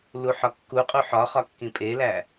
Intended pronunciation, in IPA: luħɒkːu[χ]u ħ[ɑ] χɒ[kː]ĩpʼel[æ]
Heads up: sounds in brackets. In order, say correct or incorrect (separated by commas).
incorrect, incorrect, correct, correct